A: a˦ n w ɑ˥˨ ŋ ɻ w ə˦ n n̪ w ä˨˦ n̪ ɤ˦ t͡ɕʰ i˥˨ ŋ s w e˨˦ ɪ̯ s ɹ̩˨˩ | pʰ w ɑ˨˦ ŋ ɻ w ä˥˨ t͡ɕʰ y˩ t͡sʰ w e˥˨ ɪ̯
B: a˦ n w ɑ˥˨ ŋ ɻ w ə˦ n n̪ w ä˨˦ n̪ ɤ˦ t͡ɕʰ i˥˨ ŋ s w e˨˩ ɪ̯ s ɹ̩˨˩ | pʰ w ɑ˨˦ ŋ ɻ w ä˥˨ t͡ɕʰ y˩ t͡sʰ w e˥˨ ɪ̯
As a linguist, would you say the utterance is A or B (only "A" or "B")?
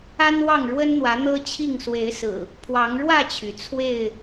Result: A